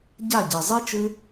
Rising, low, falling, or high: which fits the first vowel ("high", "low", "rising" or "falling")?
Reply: falling